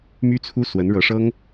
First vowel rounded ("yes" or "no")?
yes